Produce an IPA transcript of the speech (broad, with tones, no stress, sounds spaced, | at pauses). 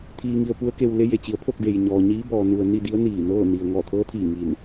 t̪ʰ iː˩ ŋ i˩ ə̯ p u˧˥ ə̯ k e˧ w l e˧˥ j e˩ t͡ɕ i˩˧ ə̯ pʰ o˥˨ k̚ d e˩ j ɲ ɔː˩ ɲ iː˧˥ b ɔː˩ n u˩ ə̯ n i˥˨ d i˧˥ ə̯ n iː˧˩ n ɤː˥˨ n i˩ ə̯ ŋ ɔː˧˩ t̪ʰ ɤː˧˥ t̪ʰ iː˧˩ ŋ i˧˩ n